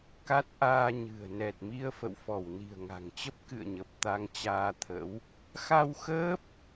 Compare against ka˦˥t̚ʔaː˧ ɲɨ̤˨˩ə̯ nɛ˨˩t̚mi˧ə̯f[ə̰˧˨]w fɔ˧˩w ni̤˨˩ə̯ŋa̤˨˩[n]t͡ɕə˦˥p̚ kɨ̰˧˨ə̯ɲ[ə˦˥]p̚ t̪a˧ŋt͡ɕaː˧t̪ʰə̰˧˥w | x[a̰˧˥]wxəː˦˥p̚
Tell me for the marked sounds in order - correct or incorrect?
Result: correct, incorrect: ŋ, incorrect: ə˨˩, incorrect: a˧

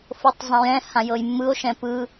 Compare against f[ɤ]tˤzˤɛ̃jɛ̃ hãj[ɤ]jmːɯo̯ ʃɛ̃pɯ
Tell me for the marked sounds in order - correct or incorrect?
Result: correct, correct

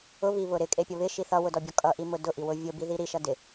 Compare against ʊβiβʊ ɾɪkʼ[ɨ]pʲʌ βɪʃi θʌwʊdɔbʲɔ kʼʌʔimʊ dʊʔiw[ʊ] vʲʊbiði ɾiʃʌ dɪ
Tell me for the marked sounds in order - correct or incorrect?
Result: incorrect: e, correct

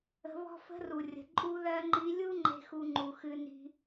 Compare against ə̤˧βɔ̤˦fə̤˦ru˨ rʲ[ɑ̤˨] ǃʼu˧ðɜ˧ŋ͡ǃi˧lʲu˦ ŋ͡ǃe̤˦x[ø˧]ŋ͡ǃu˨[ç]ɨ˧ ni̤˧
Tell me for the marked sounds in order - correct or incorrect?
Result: incorrect: ə̤˨, incorrect: u˧, incorrect: x

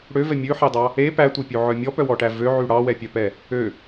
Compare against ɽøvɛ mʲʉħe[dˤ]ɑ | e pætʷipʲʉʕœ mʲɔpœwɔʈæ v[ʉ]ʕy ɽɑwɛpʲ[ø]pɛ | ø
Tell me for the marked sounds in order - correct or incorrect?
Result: correct, incorrect: ø, incorrect: œ

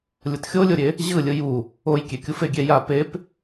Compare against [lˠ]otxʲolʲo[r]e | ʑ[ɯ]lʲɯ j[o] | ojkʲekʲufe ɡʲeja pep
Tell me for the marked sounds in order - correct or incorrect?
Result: incorrect: lʲ, incorrect: ɾʲ, correct, incorrect: u

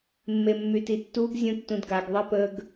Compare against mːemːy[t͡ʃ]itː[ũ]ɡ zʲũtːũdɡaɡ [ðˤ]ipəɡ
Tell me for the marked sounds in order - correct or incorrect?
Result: incorrect: t, incorrect: u, correct

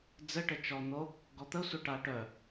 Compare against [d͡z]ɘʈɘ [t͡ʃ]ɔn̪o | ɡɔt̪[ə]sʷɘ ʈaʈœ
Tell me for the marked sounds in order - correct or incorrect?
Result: correct, correct, correct

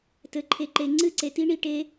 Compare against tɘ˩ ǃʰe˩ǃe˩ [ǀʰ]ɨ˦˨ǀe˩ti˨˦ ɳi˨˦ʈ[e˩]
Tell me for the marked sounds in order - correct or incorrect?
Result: incorrect: ŋ͡ǀ, incorrect: e˨˦

